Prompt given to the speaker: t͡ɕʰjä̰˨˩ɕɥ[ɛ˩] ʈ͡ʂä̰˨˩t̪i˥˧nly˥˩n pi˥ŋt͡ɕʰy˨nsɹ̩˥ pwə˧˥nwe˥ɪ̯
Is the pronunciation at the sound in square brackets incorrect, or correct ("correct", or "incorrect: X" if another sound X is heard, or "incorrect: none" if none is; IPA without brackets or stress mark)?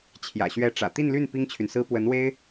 incorrect: ɛ˧˥